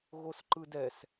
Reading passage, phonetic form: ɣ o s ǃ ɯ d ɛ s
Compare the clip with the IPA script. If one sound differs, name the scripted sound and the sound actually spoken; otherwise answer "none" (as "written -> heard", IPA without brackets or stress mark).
none